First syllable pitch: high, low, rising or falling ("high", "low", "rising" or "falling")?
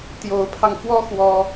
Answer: rising